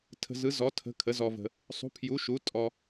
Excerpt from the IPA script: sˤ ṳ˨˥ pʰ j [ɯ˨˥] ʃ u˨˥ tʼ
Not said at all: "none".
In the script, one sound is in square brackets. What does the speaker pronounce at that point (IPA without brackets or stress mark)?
u˨˥